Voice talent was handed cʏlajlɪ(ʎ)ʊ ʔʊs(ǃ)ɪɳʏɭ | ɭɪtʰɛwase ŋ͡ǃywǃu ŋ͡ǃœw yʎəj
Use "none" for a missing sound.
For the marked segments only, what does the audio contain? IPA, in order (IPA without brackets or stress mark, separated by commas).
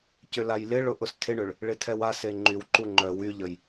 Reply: ɭ, tʰ